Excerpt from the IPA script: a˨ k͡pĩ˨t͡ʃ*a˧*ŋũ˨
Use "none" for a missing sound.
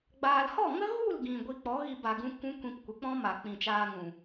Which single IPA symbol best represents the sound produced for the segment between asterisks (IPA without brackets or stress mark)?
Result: aː˧